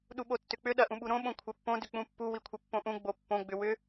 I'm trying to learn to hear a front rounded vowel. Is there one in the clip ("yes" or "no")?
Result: yes